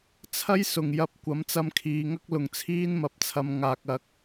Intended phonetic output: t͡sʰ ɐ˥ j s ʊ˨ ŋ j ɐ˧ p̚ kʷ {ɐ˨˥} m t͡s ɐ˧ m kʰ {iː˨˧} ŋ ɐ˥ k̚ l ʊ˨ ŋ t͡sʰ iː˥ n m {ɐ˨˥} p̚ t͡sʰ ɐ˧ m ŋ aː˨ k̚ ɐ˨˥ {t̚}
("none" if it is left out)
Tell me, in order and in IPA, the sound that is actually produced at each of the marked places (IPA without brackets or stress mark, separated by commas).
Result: ɐ˨˥, iː˨˧, ɐ˨˥, k̚